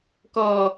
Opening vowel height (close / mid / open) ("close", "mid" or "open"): mid